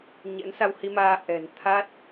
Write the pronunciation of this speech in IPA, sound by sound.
ɲɛ̰˧˥nsa˧whi˧maː˧ ʔɛ̤˨˩n t̪ʰa˦˥t̚

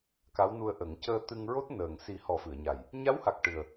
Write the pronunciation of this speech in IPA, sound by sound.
ka˧˥wnu˧ə̯ʔə˨˩˦ŋ cəː˧t̪ɨ˧ŋɹo˦˥t̚ nəː˨˩ŋ si˨˩˦ hɔ˨˩˦fɨ˨˩˨ə̯ɲa˨˩j | ɲa˧˥wha˨˩k̚ ʈɨ˨˩ə̯

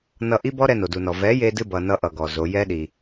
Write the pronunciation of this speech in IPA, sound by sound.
nʌ˧ ʔi˦bɔ˦ɾɛ˧ no˨du˨nɔ˨ vɛ˨˦je˧dɨ˧bʌ˨ nʌ˦ ʔʌ˧ɡɔ˨zo˨˦ jɛ˦ɗi˨

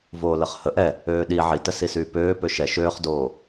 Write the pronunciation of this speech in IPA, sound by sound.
voːləχhə ʔɛ | øːɗi ʕitəsisyː pøː pøʃɛ ʃøːχdoː

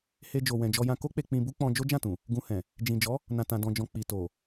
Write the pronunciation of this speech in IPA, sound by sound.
he˧d͡ʒo˨ wɛ̃˨d͡ʒɔ˧jã˧ ko˦k͡pe˧ k͡pĩ˧bu˦ k͡pɔ̃˧d͡ʒo˦ d͡ʒã˦˨tũ˨ | ɡũ˧hɛ̃˨ | d͡ʒĩ˨d͡ʒɔ˨˦ | nã˨tã˨ dɔ̃˨d͡ʒɔ̃˨ k͡pi˨to˨

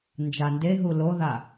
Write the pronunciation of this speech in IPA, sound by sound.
nd͡ʒandeɦu loða

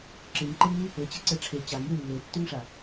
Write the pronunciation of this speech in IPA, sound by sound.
ǁɨŋǃeŋi | ɘ t͡ɕeǀɛʈ͡ʂʰe t͡ɕaŋjɨ lːetːyŋʂa

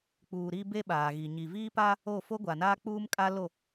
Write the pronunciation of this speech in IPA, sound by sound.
k͡puː˨ ɾi˦be˦ɓaː˨ɣi˨ ɲi˨viː˦ pa˦ | o˦˨fo˦ɡʷa˨ naː˦k͡puː˦mkʼa˦lo˦˨

